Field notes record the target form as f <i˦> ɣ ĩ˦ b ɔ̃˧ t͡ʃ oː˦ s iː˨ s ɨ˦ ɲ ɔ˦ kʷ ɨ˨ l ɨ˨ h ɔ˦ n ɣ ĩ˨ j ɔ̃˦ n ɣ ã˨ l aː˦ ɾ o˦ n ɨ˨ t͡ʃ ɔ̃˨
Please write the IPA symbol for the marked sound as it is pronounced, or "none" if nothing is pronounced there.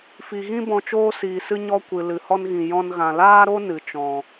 i˨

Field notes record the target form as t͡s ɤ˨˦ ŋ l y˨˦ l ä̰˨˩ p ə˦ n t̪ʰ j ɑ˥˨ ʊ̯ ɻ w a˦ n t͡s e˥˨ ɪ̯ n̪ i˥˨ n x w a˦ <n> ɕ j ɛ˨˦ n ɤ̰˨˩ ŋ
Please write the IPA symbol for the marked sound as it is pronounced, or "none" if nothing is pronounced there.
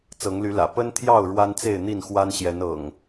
n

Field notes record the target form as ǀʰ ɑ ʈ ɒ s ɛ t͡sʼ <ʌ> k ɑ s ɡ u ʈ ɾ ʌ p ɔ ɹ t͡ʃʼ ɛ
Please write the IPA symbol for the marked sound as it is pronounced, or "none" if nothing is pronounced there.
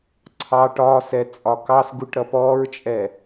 ɒ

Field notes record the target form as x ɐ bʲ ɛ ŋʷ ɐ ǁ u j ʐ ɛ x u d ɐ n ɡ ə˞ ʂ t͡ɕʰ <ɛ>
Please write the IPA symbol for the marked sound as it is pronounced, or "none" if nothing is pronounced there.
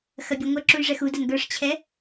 ɛ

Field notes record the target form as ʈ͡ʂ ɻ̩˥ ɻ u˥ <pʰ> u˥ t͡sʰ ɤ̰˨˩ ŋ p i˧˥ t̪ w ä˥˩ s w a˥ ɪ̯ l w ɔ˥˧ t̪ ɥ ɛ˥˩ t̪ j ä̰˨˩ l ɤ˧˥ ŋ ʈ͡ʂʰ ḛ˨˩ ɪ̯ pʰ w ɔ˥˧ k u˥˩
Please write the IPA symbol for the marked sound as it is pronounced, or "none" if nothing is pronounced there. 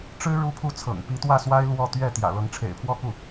pʰ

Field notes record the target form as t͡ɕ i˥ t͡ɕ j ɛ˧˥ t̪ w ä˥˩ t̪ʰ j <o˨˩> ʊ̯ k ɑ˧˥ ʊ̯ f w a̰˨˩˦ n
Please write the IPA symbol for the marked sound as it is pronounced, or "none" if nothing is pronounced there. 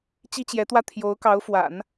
o˧˥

